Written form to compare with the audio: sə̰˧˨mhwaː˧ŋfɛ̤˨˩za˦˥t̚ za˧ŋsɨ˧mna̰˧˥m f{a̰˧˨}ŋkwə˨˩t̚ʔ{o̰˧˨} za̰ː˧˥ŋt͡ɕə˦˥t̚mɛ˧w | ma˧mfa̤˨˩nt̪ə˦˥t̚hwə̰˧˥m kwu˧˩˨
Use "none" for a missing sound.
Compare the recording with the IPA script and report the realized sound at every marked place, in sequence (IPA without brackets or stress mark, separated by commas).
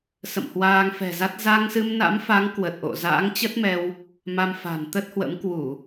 a˨˦, o̰˧˨